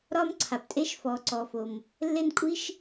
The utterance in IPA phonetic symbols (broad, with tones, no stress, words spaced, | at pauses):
ɾɒ˥mǀʰa˩ptʼe˥ʃ fɔ˩ ǀɔ˩ fo˩m | lːe˥nkʷʼi˥ʃ